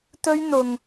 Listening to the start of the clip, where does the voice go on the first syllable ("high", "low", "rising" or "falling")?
high